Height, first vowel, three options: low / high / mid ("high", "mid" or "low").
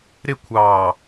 high